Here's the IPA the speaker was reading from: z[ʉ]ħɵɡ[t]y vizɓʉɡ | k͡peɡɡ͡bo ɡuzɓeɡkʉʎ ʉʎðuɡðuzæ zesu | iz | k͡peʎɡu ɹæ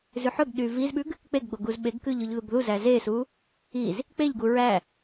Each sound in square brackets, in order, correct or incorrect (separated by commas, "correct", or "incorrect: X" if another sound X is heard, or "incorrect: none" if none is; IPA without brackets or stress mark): correct, incorrect: ɗ